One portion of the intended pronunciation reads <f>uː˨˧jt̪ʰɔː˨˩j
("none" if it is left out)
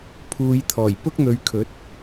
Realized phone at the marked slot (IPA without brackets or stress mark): pʰ